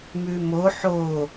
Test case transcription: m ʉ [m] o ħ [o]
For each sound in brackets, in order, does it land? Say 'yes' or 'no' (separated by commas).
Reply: yes, yes